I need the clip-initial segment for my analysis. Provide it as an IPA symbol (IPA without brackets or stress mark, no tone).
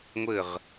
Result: ŋʷ